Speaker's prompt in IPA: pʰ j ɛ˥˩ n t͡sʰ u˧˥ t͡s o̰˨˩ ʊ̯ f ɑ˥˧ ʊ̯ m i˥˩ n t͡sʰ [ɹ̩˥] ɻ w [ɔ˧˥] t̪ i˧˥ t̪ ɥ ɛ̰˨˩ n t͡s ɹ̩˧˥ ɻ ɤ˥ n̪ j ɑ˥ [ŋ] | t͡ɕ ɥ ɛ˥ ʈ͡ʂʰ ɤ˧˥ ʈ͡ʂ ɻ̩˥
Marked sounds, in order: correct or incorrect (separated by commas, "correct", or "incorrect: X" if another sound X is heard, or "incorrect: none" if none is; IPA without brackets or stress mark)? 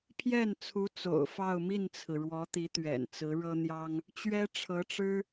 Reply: incorrect: ɹ̩˩, correct, correct